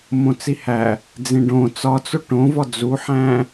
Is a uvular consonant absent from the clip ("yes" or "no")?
yes